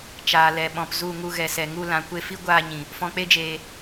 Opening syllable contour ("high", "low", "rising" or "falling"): low